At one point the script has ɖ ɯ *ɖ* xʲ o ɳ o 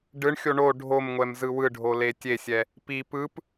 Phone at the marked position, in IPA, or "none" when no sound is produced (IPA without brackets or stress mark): ɳ